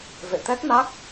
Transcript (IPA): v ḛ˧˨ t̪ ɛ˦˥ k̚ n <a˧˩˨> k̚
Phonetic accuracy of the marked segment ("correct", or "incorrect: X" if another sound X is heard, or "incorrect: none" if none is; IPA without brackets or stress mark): incorrect: a˦˥